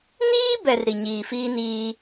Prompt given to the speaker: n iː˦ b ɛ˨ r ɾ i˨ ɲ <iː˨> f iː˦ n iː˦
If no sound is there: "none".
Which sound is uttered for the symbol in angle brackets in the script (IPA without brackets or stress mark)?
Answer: iː˨